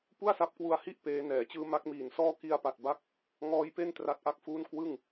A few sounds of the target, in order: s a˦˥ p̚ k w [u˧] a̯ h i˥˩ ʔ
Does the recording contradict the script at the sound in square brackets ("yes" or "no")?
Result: no